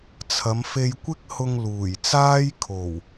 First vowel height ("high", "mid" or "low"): low